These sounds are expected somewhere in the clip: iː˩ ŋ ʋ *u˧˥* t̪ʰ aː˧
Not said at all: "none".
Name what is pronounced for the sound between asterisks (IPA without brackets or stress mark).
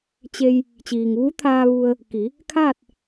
u˧˥